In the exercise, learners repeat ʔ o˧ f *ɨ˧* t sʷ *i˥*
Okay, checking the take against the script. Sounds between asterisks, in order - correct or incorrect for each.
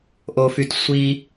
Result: incorrect: y˧, incorrect: i˧

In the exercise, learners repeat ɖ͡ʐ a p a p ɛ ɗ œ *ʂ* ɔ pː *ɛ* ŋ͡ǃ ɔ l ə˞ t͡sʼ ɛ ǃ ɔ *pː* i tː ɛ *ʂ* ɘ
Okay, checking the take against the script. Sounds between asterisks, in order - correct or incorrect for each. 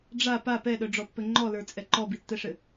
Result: incorrect: ɖ͡ʐ, incorrect: ɘ, incorrect: b, correct

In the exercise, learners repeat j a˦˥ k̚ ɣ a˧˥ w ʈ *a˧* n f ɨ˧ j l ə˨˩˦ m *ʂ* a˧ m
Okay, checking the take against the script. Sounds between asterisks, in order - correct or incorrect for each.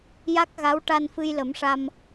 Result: correct, correct

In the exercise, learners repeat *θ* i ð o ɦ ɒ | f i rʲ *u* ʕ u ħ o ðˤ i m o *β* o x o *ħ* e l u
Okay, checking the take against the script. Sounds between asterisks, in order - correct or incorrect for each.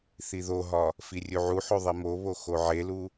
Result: correct, correct, correct, incorrect: ʕ

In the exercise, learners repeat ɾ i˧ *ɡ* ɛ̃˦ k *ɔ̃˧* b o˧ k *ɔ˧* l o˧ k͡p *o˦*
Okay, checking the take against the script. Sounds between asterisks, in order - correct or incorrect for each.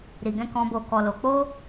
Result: correct, correct, correct, correct

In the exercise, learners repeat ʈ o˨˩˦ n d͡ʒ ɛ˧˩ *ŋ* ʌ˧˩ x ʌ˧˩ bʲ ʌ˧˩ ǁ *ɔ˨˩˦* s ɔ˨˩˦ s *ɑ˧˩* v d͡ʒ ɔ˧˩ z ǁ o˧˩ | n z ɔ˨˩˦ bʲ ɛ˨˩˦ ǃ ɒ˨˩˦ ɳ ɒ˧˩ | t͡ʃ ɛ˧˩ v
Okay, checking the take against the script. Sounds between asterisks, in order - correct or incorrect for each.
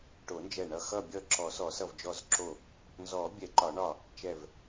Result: incorrect: ɳ, correct, incorrect: ʌ˧˩

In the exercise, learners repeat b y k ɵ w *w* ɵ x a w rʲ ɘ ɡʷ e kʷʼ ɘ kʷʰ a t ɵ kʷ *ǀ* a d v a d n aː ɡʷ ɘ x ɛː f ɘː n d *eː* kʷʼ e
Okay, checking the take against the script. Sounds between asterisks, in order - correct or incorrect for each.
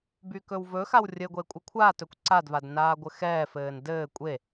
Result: incorrect: v, correct, incorrect: ɘː

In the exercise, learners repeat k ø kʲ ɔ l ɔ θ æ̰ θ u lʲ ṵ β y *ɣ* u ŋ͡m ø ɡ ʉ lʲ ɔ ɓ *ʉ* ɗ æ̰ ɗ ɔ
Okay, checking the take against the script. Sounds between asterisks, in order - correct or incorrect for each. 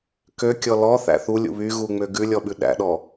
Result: correct, correct

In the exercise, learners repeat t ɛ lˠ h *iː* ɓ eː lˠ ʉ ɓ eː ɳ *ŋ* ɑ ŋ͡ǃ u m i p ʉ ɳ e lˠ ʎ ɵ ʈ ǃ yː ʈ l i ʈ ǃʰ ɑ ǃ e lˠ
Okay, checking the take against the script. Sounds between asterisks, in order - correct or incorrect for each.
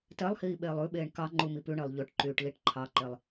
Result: correct, incorrect: k

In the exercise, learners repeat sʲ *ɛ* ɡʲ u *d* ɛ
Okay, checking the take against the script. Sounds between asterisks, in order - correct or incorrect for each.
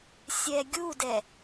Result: correct, correct

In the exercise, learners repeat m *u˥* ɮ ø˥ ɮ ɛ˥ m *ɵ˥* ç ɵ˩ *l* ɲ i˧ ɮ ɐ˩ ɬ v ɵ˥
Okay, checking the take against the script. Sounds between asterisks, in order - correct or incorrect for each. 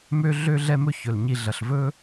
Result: incorrect: ø˥, correct, correct

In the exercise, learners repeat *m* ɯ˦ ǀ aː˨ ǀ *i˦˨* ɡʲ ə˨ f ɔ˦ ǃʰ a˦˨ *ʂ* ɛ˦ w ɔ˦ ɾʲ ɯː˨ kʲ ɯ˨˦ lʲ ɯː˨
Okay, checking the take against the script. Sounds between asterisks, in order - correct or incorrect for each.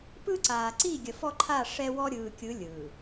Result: incorrect: p, correct, correct

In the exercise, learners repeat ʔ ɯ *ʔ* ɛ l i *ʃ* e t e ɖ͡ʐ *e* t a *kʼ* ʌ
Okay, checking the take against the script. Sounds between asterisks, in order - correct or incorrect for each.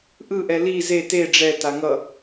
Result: correct, incorrect: z, incorrect: ɛ, incorrect: ŋ

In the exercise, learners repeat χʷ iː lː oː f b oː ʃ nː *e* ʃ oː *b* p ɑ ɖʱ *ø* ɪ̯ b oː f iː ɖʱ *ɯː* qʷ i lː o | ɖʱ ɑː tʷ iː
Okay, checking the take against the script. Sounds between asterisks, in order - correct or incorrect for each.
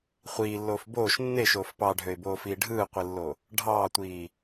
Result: correct, incorrect: f, correct, correct

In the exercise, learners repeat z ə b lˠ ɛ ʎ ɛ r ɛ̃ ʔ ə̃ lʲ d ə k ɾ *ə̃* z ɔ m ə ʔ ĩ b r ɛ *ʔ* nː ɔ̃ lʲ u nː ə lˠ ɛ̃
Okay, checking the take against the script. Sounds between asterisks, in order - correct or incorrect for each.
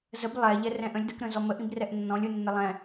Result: correct, correct

